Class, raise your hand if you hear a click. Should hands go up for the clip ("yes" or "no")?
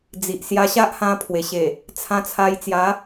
no